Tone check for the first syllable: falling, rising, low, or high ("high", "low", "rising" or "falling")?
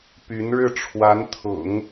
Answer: rising